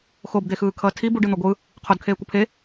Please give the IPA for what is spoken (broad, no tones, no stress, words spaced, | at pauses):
xobd̪exɯːkʰʌː tʰi buɖɯn̪o ɡʷɯ | qʰodkʰeːkʷɯ pʰe